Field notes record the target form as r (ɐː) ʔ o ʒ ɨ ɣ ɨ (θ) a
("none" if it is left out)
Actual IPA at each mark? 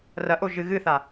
ɐ, θ

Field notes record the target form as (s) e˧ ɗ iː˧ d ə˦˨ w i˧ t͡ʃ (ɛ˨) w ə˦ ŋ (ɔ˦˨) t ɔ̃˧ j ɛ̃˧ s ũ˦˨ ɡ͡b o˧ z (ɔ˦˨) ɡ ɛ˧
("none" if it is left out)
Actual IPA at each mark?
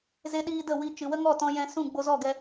z, ɨ˨, ɔ˦˨, ɔ˦˨

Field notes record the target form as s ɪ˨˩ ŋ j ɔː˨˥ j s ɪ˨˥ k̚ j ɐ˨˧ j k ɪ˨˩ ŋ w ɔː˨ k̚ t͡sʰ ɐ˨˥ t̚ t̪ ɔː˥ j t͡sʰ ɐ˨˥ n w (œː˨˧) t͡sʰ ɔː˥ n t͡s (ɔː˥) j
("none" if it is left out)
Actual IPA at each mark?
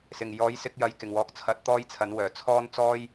œː˨˩, ɔː˥

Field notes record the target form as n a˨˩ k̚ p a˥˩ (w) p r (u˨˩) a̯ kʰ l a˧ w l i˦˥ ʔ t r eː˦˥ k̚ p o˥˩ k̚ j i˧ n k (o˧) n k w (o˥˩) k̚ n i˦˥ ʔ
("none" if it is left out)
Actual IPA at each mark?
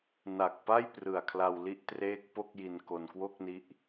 j, ɯ˨˩, o˧, o˥˩

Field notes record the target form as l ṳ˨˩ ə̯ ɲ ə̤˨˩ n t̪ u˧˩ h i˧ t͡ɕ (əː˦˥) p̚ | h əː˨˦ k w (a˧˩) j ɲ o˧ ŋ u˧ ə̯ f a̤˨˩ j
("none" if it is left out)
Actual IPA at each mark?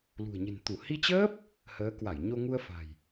əː˦˥, a˧˩

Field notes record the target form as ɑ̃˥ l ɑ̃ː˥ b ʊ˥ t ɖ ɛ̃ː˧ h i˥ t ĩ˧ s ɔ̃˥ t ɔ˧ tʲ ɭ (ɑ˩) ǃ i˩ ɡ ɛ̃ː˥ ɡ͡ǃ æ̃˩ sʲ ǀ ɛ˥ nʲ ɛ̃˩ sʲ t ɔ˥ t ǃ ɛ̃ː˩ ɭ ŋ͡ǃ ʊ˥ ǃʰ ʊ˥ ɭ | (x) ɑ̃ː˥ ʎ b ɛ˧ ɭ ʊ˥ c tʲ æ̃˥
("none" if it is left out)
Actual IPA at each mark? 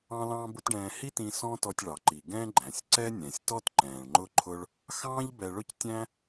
ɑ˩, x

